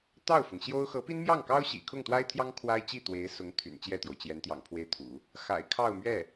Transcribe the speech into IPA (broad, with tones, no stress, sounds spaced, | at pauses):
t̪ ɑ˥˩ ʊ̯ f ʊ˩ ŋ ɕ j o˥ ʊ̯ x ɤ˧˥ p i˥ n m j ɑ˥˩ ŋ k ɑ˥ ʊ̯ ɕ ḭ˨˩ kʰ ʊ˥˩ ŋ t̪ w a˥ ɪ̯ t̪ʰ j ɑ˥ ŋ kʰ w a˥ ɪ̯ t͡ɕ i˥˩ t̪ w e˧˥ ɪ̯ s ʊ˧˥ ŋ t̪ʰ y̰˨˩ n t͡ɕ j ɛ˥˩ t̪ j o˩ ʊ̯ t͡ɕ j ɛ˧˥ n t̪ j ɑ̰˨˩ ŋ pʰ w e˥˩ ɪ̯ t̪ʰ ṵ˨˩˦ | x a̰˨˩ ɪ̯ kʰ ɑ˥˧ ʊ̯ m ɥ ɛ˥˩